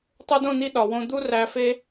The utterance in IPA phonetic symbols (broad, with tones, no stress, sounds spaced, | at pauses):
tˤ u˧ d õ˦˨ n i˧ ɗ ɒ˨ w õ˧ d̪ u˦ r æ˧ f e˦